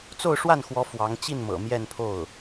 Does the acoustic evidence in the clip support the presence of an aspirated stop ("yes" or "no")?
yes